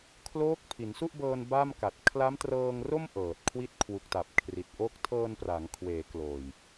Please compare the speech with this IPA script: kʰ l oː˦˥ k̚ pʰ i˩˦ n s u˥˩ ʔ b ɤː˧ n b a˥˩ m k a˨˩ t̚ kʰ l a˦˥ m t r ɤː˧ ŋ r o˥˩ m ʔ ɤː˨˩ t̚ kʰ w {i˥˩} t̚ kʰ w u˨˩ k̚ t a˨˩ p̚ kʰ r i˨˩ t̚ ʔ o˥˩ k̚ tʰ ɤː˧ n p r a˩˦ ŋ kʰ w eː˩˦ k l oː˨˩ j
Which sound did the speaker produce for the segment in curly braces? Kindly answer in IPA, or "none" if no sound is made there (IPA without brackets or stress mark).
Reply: i˥˩